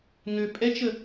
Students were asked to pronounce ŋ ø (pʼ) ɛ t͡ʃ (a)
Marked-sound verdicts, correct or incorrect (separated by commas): correct, incorrect